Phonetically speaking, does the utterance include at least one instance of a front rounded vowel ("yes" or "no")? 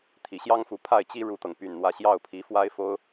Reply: yes